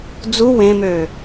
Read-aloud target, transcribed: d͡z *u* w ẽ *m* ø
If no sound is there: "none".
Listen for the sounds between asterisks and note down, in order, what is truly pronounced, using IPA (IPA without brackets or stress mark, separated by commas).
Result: u, m